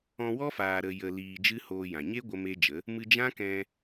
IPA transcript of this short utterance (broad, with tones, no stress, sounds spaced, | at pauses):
ɔ̃˧ w ɔ˦ f aː˨ ɾ ə˧ j ə˧ l iː˧ d͡ʒ ɨ˦ h oː˧ j ã˨ ɲ e˦ ɡʷ ə˦ m e˦ d͡ʒ ə˨˦ | m ɨ˧ d͡ʒ ã˦ k ɛ̃˧